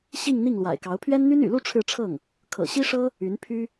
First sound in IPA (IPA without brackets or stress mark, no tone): ɕ